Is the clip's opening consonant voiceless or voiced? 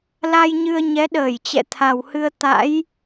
voiced